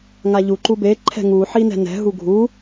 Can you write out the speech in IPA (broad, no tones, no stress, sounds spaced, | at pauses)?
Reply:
ŋ a ʎ u ǃ u b e ǃʰ ɛ̤ ŋ u ħ i n ɛ̤ n ɛ̤ ɦ u ɡʱ u